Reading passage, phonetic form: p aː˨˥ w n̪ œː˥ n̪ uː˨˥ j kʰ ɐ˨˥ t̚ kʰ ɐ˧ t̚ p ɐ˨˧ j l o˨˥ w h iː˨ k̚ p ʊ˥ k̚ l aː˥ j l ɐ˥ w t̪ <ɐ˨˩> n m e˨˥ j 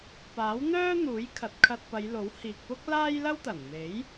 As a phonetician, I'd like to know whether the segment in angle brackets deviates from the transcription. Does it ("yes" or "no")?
no